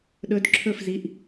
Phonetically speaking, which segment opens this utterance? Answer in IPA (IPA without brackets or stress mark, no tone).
ɗ